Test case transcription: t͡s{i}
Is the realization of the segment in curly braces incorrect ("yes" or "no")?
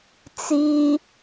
no